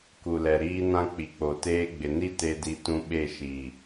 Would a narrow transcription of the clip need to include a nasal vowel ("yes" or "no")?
yes